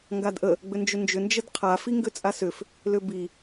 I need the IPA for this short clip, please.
ŋ ɡ a d ʔ ə | ɡ͡b ʏ n d͡ʒ ʏ n d͡ʒ ʏ n d͡ʒ ə d qʰ a f i ŋ ɡ ʏ t͡sʼ a s ʏ f | l ʏ b i

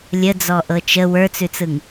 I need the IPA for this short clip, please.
lʲ ə d͡z ɔ ʔ ɤ t͡ʃ ə w ə˞ t͡s ʉ t͡s ɯ ŋ

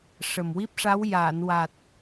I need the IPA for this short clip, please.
ʂ ə˨˩ m w i˦˥ p̚ ʂ a˧˥ w j aː˨˩˨ n w a˨˩ t̚

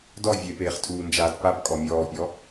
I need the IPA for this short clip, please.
d ɔ vʲ e p eː χ tʰ uː n d͡ʒ aː t p a p kʼ ɔ mʲ ɔː pʲ ɔ

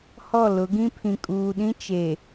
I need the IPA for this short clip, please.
h ɔ˦˨ l ʊ˨˦ ɡ ĩ˦ pʰ ĩ˨ kʼ uː˨ ɗ ĩ˦ t͡ʃ e˨

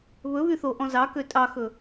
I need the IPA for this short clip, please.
β ɵ β y θ o ʔ ɔ̃ z ɑ k ø tʼ ɑ x ɵ

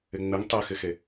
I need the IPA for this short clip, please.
ɪ ŋ͡m ɪ ŋ tˤ e x ɪ x e

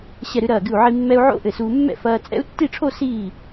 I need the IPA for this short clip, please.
ɕ ɛ˧˩ ɾ ɨ˧ ɾ ɐː˧˩ ɡ ɨ˧˩ u̯ ʕ i˧ mː ɛ˧ u̯ ʕ o̰˦˥ ʔ ɘ˧˩ s uː˧ mː ɛ̰˥˧ f ɐː˧ t͡sʼ ɛ̰˦˥ u̯ tː i˥˧ ʈ͡ʂʰ o˥˧ s iː˧˩

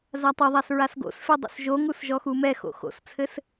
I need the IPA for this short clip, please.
z a tˤ ɐ ðˤ a s ɹ a s ɡ o̰ s f ɛ dˤ o̰ s ʒ o ŋ u s ʒ ɔ x u m ɛ x o̰ x o̰ s t͡sʰ ɘ s

